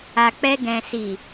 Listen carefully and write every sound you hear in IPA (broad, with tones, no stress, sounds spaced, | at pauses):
a˨ k͡p ɛ˧ ɡ ɛ̃˨ s i˨